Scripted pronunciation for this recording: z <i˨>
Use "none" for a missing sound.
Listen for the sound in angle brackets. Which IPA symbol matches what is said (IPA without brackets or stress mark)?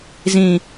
ĩ˨